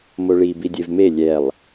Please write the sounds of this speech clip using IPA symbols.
moɭi bidʲevme lʲɛlˠ

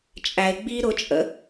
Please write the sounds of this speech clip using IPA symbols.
t͡ʃʼæɪ̯ ɡ͡bi ɾʊt͡ʃʼə̰

